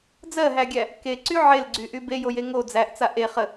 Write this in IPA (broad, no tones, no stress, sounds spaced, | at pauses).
d͡z ɜ ɦ æ ɡʲ æ | k e ǀ y ʕ e l ɡ͡ǀ y ʔ y b e j o j e ŋ o d͡z æ ʔ t͡s a ʔ e χ ə